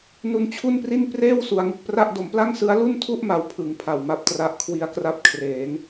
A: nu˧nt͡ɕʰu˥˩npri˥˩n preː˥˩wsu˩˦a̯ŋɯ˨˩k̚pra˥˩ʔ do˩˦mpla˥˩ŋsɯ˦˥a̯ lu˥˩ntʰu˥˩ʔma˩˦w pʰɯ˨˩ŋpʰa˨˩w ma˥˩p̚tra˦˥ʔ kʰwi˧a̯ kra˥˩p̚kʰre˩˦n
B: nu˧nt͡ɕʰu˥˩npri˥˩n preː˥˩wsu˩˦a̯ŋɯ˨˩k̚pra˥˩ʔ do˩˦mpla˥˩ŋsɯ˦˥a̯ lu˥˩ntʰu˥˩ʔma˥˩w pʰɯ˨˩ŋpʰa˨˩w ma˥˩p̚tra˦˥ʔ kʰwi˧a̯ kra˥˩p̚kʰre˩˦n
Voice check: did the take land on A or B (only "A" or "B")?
A